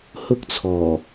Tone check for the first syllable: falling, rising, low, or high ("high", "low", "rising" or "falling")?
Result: high